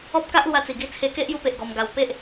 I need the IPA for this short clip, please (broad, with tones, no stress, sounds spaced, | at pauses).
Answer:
ɔ˦ p̚ k a˦ ʔ l w a˧ t͡s i˨˩ ɡ i˧ t͡sʰ e˧ k e˦ ʔ j u˧ p e˨ ʔ ɡ ɔ˧ m ɡ a˧ w p e˦ ʔ